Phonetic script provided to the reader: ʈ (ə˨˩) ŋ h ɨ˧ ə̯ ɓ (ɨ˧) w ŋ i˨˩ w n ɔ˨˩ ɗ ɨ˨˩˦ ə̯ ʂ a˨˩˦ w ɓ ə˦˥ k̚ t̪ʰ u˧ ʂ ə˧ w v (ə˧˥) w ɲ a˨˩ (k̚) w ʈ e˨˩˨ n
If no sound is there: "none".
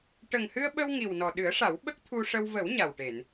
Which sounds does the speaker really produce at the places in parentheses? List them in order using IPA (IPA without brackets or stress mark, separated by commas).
ə˨˩, ə˧, ə˨˩˦, none